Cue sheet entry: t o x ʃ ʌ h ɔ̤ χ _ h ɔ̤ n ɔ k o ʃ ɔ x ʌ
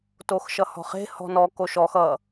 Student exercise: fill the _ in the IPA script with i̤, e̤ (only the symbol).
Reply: e̤